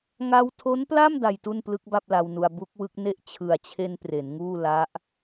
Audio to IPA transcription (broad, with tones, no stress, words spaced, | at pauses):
ŋa˧wtʰo˦˥npla˥˩m da˧jtu˥˩n plɯ˦˥k̚ba˥˩p̚ la˧wnu˧a̯ bu˦˥k̚wɯ˦˥k̚ ne˥˩ʔ t͡ɕʰɯ˨˩a̯t͡ɕʰe˧n pre˩˦nŋuː˥˩ la˦˥ʔ